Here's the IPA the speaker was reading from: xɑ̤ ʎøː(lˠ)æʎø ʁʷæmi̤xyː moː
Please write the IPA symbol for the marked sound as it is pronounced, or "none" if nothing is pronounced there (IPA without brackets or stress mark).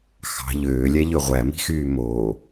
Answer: lʲ